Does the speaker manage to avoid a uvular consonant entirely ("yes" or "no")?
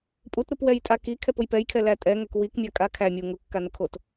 yes